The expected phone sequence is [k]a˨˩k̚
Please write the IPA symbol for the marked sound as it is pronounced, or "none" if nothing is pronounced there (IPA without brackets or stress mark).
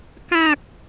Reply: k